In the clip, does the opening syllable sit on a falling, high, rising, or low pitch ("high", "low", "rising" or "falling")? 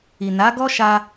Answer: low